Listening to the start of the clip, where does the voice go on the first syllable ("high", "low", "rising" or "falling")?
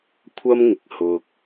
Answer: high